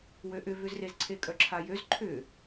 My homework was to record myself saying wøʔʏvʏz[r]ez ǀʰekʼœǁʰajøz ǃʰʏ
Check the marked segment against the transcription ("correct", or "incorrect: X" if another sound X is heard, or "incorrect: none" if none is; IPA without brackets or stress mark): correct